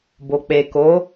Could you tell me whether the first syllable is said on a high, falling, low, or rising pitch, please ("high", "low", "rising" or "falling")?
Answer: low